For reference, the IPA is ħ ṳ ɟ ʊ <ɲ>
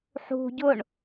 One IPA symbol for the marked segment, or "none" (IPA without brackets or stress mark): ɳ